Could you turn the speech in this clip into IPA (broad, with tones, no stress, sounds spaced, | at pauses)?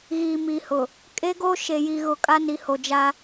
ɣ iː˨ m iː˨ h ʊ˨ | kʼ e˦ ɡ o˦ ʃ e˨ j i˨ ɣ ʊ˨ kʼ a˦ n i˨ h o˨ d͡ʒ a˦